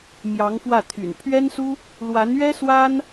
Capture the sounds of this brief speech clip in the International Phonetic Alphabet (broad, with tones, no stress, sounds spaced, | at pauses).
m j ɑ˧˥ ŋ f w ä˥˩ t̪ʰ y̰˨˩ n pʰ ɥ ɛ˥ n s u˥ | l w a˧˥ n ɥ ɛ˥ s w a˥ n